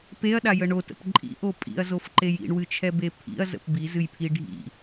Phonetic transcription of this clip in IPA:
p e ɐ̯ ɗ a j ə ɳ o t ə̰ p ǃʼ ḭ ʔ o pʼ ḭ ɐ̯ z o f ǃ e j ḭ ɳ w ɨ t͡ʃʰ ɛ b e pʰ ḭ ɐ̯ z ə̰ p b i z ɨ j pʰ i ɖʱ ḭ

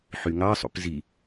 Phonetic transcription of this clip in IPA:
ħ y ŋ ɑ sˤ ṵ p z i

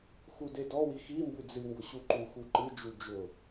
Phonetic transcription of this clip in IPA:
x u d e d ɔ w i x i m b ɨ d͡z ɨ ŋ ɡ ʊ ɕ u ǃ u x u ǃ ɨ d͡ʒ u d͡ʒ ʊ

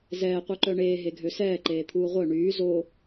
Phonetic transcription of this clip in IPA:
z ɛː qʷ œ ǃ œ ɳ eː ɦ e ɡʱ ø s ɛː ǃ eː t̪ʰ uː ʁʷ œ ɳ yː z o

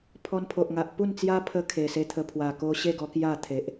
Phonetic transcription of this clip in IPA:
pʰ ɔ˧ n pʰ o˨ ʔ ŋ a˨ ʔ p u˥˧ n t͡s j a˦ pʰ ə˧ kʰ e˨˩ s e˧ t̪ʰ ə˧ pʰ w a˨˩ k o˧ ɕ e˥˧ ɡ ɔ˧ k j a˥˧ t̪ʰ e˨ ʔ

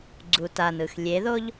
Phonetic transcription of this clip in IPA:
ɡ͡ǀ u t a n ɯ x lʲ e ð o ʎ

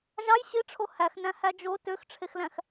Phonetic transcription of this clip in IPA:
ʒ ɑ j ɕ i ʈ͡ʂʰ o h æ x n æ̃ h æ d͡ʒ o t ø x ʈ͡ʂʰ e x l æ̃ x

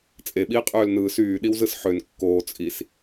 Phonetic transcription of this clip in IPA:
t͡sʼ e ɓ iː qʼ øː l n ɯː s yː ɗ i w z ɯ s ħ ø n kː oː t͡sʼ i s

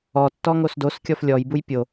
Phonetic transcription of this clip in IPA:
ɔ tː ɔ ŋ o s d o s kʲ ɔ f lʲ ɔ j b u j pʲ o

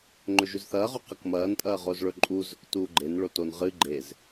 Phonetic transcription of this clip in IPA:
ŋ͡ǃ ɵ ʒ ʉ z θ ɐː ʁ o q ɐ k m ɐː n tʼ ɐː ʁ o z ɭ ɵ ǃʼ uː z ɵ k t uː ɡ͡ǃ e n ɭ o t o n ʁ ɨ ɡ͡ǃ e z

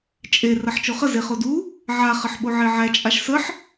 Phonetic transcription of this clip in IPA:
t͡ʃʼ e r ɐ ħ t͡ʃ o χ ə z e χ o d u | ʕ a χ ə ħ ɓ o ʕ e ʕ æ t͡ʃʼ a ʃ s ə ħ

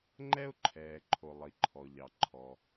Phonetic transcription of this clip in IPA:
ŋ͡ǃ ɛ˥ ʊ̯ ǃʰ ɛː˩ ǃʰ o˩ lˠ i˩ ǃʰ ɔ˩ ʎ ɑ˩ ǃʰ ɔ˩

